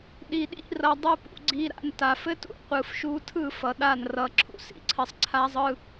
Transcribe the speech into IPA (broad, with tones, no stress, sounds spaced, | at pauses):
ɗ i˨ ɗ ḭ˧ r ʌ˨ dˤ u˧ p ṵ˨ ɡ͡ǀ i˧ ɾ a̰˧ n t a˨ f ɘ˦ t ṵ˧ qʷ ɯ˨ f ʃ u˧ tʰ ɯ˦˨ f ʌ˨ ɗ a˦˨ n r ʌ˧ ǁʰ ṵ˦˨ s ḭ˧ ǀʰ ɘ˦ sˤ ǀʰ a˦ zˤ ɯ˦